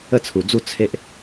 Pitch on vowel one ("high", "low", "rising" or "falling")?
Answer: falling